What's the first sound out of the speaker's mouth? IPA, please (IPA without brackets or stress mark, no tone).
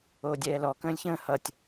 oː